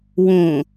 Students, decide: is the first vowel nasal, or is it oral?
nasal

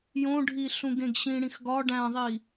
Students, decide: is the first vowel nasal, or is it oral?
nasal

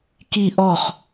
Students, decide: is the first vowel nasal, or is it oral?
oral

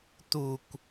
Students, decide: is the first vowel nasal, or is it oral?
oral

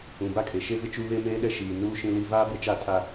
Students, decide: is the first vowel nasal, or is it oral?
nasal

